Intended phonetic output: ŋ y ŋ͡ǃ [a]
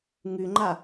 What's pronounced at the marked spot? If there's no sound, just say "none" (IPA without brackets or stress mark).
a